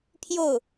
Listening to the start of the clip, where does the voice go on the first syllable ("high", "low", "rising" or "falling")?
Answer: falling